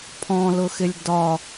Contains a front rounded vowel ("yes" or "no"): no